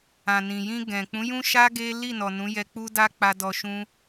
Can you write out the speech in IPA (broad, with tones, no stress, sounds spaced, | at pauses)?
ã˨ n ĩ˨ j ĩ˧ ɡ ɛ̃˨ k͡p ũ˨˦ j ũ˦ ʃ a˦ ɡ e˦ l i˦˨ n ɔ˨ n ũ˨˦ j ɛ˧ k͡p u˦ d a˦ k͡p a˧ d ɔ˧ ʃ ũ˦